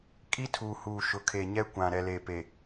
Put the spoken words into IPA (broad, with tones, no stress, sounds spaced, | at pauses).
kʼ i˦ tʰ uː˨ h uː˨ ʃ ʊ˨ kʰ e˨ ɲ ɛ˦ kʷ ã˨ ɾ ɛ˨ l eː˨ p e˨